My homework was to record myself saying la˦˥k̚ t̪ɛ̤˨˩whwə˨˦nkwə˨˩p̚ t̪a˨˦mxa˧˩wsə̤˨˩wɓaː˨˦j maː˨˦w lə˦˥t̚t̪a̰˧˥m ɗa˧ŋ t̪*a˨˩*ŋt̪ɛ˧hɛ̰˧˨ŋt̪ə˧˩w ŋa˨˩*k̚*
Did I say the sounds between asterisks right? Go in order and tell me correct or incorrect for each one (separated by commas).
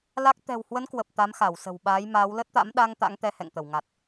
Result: incorrect, incorrect